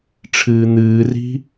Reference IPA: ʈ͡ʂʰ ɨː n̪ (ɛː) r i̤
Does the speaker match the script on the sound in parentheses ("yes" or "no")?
no